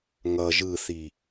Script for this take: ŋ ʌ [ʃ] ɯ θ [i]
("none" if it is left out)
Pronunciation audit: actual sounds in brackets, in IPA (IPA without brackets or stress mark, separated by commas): ʒ, i